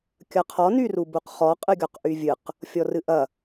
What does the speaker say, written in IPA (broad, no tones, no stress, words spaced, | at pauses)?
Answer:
kʲɐqʰɔ nyrubuqχɔ qʼɨɡʲɔqʔyvʲɨq | fʲɔrɨʔɐ